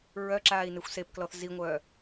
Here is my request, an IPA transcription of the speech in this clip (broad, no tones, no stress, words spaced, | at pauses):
ɹœ ǁaːi̯nexʷsepklɔθ ziŋʷœː